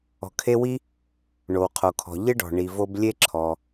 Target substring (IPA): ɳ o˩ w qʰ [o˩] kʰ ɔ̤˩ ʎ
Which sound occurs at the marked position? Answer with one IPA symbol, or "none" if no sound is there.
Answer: o˩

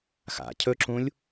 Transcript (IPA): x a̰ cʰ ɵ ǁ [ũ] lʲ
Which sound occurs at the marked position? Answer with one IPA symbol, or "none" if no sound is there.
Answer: ũ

